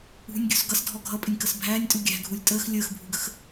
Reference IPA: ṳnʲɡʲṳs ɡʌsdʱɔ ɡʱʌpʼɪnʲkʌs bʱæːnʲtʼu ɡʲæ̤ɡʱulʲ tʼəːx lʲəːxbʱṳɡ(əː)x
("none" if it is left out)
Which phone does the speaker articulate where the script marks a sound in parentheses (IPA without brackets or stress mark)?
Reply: ə